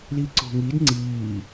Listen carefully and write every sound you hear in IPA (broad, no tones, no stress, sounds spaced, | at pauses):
l i ǀ o̤ ŋ i d ŋ͡ǀ iː